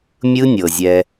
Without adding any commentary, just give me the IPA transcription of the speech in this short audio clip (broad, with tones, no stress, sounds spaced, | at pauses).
mʲ ɯ˦ nʲ ɤ˨ zʲ ɛ˧